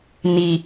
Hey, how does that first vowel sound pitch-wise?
low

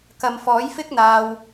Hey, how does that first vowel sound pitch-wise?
low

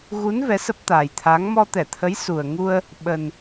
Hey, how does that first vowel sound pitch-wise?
rising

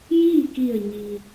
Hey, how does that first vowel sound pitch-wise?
falling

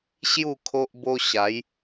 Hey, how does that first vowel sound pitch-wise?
falling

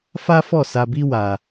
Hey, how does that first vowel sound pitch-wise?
high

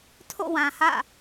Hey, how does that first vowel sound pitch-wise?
falling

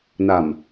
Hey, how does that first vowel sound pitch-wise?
low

